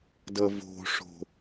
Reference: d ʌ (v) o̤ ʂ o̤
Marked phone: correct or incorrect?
correct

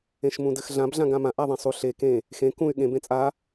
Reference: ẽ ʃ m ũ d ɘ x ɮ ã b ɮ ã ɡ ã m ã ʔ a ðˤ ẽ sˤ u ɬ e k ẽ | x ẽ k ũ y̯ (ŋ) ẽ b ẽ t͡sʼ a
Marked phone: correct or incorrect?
incorrect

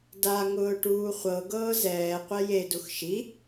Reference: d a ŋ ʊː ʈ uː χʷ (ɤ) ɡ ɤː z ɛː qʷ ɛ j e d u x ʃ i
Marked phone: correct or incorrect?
correct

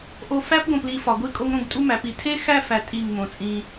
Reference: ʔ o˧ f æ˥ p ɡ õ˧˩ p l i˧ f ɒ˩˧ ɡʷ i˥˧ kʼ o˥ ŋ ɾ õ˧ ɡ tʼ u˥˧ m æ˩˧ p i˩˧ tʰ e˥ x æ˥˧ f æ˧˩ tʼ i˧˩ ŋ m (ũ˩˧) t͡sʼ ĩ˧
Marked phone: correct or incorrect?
incorrect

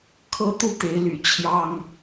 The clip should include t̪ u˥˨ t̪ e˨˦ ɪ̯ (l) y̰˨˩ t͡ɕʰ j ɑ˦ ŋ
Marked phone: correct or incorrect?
correct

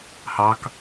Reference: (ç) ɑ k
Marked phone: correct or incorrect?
incorrect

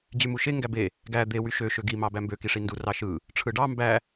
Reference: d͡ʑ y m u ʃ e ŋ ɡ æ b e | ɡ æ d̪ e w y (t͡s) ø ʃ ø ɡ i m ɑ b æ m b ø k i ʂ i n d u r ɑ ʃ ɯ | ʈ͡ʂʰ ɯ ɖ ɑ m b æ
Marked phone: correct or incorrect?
incorrect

